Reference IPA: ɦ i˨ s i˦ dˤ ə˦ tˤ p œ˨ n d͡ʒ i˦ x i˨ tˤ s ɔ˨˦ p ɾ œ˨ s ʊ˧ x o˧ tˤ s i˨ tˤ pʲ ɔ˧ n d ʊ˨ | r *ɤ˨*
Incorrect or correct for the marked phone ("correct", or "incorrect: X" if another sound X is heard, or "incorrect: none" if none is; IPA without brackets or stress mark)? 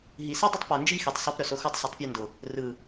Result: incorrect: ɯ˨